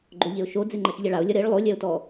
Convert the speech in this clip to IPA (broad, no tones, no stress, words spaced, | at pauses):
ɡ͡ǃoʎeʊ̯ʃo d͡zeŋ͡ǃɐʃʎɛɭaʊ̯ lʲɐɾeɭ lˠo lʲɛʊ̯tɔ